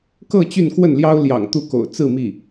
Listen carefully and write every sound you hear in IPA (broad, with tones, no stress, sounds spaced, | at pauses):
k ɤ˥˧ t͡ɕ y˥˧ n k w ə˥˩ n l j ɑ˥ ʊ̯ l j ɑ̰˨˩ ŋ t̪ u˥˩ k o̰˨˩ ʊ̯ t͡s ɹ̩˥˧ m i˥˩